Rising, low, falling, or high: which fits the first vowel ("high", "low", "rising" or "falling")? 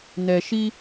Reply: low